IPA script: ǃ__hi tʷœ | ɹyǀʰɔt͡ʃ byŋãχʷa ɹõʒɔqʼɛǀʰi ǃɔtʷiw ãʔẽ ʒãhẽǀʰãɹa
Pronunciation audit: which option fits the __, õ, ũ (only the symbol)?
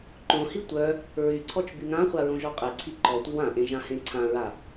õ